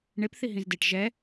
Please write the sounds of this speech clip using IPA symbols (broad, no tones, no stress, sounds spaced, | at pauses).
ɳ e p θ i ɦ ĩ z d e ʈ ʒ ɛ